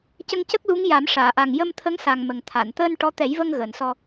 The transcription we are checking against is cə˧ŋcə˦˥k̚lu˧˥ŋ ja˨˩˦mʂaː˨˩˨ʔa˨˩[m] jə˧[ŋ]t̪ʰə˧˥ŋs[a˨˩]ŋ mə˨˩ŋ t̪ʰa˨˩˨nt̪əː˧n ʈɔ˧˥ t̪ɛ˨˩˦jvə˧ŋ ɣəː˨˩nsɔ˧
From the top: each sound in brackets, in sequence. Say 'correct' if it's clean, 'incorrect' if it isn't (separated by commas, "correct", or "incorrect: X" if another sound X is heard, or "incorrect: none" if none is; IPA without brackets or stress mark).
incorrect: ŋ, incorrect: m, correct